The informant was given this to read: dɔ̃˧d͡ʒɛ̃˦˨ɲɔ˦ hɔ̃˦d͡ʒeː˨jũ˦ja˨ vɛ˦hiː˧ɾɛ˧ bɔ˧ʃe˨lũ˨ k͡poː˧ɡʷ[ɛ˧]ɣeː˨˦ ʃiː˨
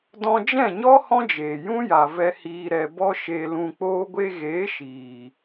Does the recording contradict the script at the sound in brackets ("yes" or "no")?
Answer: yes